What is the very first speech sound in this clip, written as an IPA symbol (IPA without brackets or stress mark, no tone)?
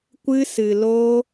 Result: kʷ